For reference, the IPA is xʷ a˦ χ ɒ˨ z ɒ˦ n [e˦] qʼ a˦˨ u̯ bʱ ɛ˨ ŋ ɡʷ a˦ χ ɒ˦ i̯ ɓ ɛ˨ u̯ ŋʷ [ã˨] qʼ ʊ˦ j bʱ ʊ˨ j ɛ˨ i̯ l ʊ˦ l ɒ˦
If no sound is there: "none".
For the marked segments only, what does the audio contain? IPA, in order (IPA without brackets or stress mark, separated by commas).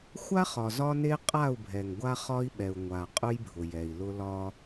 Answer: e˦, a˨